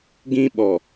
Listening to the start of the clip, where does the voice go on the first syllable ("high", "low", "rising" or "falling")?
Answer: high